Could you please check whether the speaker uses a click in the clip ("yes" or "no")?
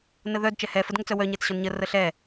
no